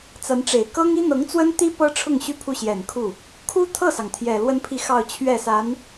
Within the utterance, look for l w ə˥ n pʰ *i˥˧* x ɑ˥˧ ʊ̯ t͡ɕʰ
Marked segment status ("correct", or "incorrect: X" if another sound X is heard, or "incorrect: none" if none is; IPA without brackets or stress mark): correct